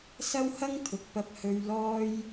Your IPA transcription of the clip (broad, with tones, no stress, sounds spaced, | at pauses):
s ɐ˥ w h ɐ˥ ŋ t̪ʰ ʊ˨ k̚ p ɐ˧ p̚ h ɵ˧ ɥ l ɔː˥ j